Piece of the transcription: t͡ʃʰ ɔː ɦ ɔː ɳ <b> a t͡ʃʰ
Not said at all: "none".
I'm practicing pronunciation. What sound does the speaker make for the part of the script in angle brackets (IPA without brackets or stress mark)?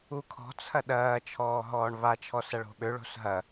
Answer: β